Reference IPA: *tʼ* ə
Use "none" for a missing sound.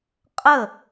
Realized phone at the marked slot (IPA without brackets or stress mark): qʼ